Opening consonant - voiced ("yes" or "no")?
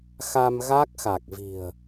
no